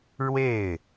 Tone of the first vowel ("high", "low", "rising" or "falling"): falling